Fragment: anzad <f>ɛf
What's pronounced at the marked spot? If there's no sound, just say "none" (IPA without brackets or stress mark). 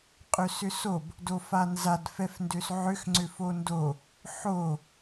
f